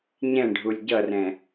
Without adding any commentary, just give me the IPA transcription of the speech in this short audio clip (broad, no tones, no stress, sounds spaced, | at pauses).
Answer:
ɲ ɛ̃ ɖʱ u lʲ ɟ ʌ r ɛ̃